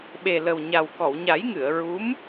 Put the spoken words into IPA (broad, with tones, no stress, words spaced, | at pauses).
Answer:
ɓe˨˩lə˨˩wɲa˨˩w kɔ˨˩˨wɲa˨˩˦jŋɨ˨˩˨ə̯ ɹu˧˥m